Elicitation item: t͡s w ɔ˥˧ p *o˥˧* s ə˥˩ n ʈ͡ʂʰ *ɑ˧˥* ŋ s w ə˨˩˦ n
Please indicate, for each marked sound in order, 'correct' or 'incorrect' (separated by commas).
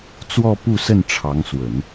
incorrect, correct